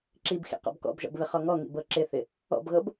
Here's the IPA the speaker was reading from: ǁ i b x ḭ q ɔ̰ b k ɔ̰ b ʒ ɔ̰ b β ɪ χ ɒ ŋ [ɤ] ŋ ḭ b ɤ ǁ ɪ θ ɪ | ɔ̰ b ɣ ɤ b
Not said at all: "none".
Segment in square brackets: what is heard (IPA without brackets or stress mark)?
ɔ